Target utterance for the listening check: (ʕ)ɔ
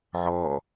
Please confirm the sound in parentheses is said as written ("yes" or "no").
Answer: yes